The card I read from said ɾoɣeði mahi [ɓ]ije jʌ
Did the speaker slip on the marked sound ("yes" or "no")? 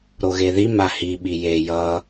no